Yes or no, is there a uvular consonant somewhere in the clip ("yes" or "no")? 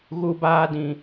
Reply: no